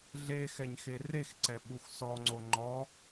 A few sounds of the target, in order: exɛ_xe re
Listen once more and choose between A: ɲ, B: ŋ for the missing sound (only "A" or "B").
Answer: A